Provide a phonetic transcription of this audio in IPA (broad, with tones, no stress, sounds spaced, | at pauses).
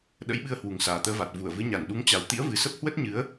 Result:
ɗ ə̰˧˥ j ɓ ɨ˧ ə̯ h w u˨˩ ŋ s aː˨˩ t̪ əː˧ v a˨˩ t̚ v u˧˩ ə̯ v ɨ˨˦ ɲ a˧˩ n ɗ u˨˦ ŋ t͡ɕ a˨˩ w t̪ ḭ˧˥ ə̯ v ɨ˨˩ s ə˦˥ p̚ h w ə˦˥ t̚ ɲ ɨ˨˦ ə̯